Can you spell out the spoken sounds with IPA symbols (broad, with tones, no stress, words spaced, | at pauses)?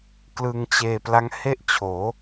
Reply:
klɯ˧ŋt͡ɕeː˧ pla˦˥ŋhe˥˩ʔt͡ɕʰoː˩˦